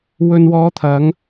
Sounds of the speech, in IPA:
wɵ˨nwɔː˨˧ t̪ʰɐ˨˧ŋ

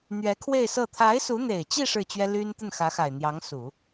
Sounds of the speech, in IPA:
n̪ɥɛ˧˥ kʰwe˥˧ɪ̯sɤ˥˩ t̪ʰa˧˥ɪ̯su˧˥n̪e˨˩ɪ̯t͡ɕi˥˧ ʂɻ̩˥˩t͡ɕɥɛ˥ ly˥n t̪ə˥˩nxä˧˥xa˨˩ɪ̯ n̪jɑ˧˥ŋsu˨˩˦

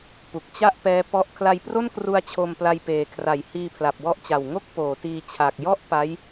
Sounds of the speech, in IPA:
pu˨˩k̚t͡ɕa˥˩ʔpɛː˦˥ pɔ˦˥ʔ kʰla˧jpro˥˩nkru˧a̯ t͡ɕʰo˧mpla˧jpeː˨˩ kʰra˩˦jhiː˧ pʰla˨˩p̚wɔ˦˥ʔt͡ɕa˨˩wŋo˥˩k̚ poː˩˦tiː˧ t͡ɕʰa˨˩k̚ jɔ˥˩ʔ pa˦˥j

